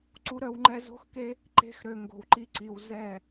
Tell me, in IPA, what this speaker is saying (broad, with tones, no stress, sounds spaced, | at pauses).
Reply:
ǀ u˦ ɾ œ˦ w ŋ͡ǃ ɛ˦ z o̤˦ x k e˦ | ǃ e̤˦ x ɾ ø˧ ŋ ɡ o̤˧ w ǃ i˦ ǀ i˧ w z ɛ˦˨